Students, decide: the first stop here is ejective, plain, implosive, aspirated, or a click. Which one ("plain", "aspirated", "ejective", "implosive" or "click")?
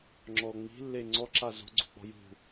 click